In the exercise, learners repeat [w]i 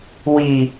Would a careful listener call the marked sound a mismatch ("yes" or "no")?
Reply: no